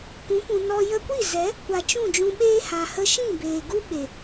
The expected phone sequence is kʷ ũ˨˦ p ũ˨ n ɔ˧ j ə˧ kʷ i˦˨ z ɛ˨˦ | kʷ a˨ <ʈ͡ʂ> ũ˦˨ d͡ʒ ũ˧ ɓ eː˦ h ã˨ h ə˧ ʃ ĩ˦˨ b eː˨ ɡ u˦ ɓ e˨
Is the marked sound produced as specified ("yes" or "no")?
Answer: no